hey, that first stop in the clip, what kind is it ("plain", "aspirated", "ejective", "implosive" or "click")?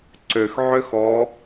click